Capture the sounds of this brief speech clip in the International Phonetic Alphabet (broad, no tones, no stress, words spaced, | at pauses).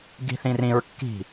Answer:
ɡi̤θĩrĩɹ kːi̤